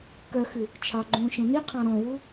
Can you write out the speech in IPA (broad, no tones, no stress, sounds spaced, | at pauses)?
k œ x ʉ | t͡ʃʰ ɑ ɡ͡ǃ ũː ʃ ẽ n i qʰ ɑ̃ ɾ ɔ̃ w u